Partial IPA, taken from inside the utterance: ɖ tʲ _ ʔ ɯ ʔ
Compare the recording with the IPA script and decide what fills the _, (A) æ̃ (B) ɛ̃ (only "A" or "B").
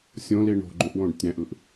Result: A